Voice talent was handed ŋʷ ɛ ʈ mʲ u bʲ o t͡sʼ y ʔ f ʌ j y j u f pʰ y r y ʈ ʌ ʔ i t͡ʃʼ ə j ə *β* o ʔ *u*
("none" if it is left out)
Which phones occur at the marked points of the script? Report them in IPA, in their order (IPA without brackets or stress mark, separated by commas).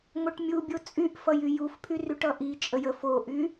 f, y